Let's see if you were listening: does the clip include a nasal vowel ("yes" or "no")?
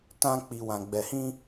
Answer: yes